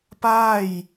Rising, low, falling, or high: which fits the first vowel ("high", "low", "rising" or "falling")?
falling